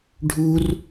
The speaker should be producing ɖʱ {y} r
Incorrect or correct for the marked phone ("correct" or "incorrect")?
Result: incorrect